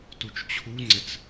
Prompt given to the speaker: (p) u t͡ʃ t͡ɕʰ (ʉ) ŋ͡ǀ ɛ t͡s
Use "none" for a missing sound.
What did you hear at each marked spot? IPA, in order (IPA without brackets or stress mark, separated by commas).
t, u